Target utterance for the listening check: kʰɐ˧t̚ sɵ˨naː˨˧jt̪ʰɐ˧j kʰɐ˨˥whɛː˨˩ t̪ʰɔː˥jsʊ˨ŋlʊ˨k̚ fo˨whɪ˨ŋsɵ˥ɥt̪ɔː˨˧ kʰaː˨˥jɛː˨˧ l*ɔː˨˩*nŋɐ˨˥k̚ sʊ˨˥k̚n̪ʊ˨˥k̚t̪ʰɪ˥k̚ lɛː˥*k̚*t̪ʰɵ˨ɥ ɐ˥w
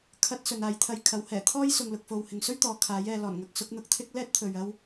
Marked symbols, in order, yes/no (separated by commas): yes, no